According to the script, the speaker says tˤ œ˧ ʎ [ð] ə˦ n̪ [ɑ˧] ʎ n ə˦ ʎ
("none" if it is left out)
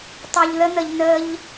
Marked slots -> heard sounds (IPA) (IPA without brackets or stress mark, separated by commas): ð, ə˧